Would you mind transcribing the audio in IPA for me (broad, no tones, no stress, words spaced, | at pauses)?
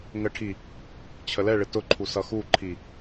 ŋəʈʰi | t͡ɕʰəlɛɭɪ tʊǃʰu sʌxuǃʰi